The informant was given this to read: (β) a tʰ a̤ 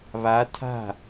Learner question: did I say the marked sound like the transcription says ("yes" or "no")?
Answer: yes